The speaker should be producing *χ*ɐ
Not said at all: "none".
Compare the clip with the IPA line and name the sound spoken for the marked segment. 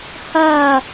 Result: h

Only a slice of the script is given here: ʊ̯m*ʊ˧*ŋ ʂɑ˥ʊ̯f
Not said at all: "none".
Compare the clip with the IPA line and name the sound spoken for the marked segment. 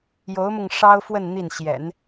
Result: ʊ˧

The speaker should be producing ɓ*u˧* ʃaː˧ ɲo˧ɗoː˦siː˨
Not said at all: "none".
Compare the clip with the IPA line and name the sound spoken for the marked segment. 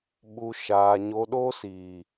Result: u˧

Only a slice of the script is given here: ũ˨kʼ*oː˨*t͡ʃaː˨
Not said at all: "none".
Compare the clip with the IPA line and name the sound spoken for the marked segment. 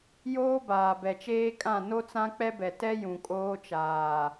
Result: oː˦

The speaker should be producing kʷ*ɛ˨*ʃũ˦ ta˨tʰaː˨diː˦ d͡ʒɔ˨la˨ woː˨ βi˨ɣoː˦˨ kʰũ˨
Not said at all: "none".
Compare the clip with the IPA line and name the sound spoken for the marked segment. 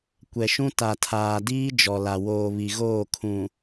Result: ɛ˨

